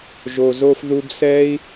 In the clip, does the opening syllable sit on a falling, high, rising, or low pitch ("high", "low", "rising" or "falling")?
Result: low